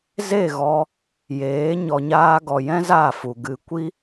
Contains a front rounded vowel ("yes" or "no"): no